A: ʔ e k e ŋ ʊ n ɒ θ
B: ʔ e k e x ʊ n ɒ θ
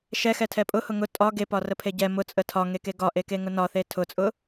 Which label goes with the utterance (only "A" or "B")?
A